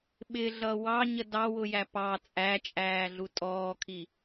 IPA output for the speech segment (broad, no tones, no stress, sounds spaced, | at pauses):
ɓ ɪ ɮ ʌ w ɑ ɲ ə d ɑ w ʊ j æ p ɑ t͡sʼ æ t͡ʃʼ æː ɮ u tʼ ɔː kʰ i